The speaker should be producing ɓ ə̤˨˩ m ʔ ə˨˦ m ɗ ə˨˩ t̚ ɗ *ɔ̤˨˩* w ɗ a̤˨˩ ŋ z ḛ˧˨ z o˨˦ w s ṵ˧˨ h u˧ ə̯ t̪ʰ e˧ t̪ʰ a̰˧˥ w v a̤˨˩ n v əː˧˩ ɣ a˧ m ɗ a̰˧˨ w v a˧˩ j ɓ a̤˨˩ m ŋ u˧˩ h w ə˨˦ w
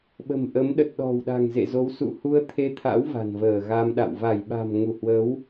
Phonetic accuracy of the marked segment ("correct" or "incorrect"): correct